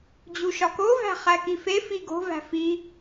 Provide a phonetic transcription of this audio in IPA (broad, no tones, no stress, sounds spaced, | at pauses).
d͡ʑ u ʃ ɒ k o v æ̤ χ æ k i f e f i ɡ o̤ v æ̤ f i